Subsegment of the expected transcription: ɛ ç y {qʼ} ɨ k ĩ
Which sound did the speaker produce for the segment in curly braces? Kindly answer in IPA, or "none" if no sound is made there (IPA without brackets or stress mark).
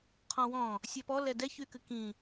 k